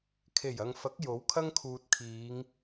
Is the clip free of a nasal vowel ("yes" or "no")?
yes